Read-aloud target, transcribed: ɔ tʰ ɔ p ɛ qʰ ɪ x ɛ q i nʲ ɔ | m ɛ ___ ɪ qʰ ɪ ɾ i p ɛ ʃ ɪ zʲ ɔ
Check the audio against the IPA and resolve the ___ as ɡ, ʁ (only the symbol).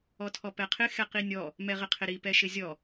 ʁ